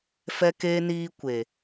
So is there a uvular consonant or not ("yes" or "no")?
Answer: no